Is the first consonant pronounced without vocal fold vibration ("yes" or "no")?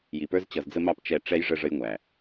no